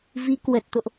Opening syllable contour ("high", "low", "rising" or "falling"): rising